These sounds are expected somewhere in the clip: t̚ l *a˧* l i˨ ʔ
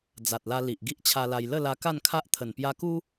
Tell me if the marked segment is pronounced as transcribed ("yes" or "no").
yes